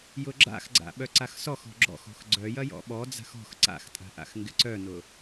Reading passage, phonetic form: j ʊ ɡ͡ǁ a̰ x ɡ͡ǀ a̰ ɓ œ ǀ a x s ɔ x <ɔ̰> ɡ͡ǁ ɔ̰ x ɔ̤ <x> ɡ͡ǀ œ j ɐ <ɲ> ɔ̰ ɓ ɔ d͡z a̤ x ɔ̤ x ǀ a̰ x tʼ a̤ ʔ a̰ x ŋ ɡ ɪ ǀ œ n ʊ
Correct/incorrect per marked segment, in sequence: incorrect: ɔ̤, correct, incorrect: j

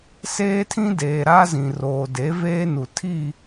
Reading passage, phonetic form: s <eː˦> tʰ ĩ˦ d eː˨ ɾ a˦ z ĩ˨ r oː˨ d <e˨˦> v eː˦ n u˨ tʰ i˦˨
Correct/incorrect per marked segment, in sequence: correct, correct

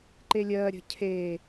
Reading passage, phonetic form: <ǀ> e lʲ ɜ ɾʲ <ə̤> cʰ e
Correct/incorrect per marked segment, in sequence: incorrect: ǃ, correct

